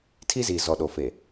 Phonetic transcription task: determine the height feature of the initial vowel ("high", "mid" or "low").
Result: high